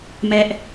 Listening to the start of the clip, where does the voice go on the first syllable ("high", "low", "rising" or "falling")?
high